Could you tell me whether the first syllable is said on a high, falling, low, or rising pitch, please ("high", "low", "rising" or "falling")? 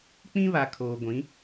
high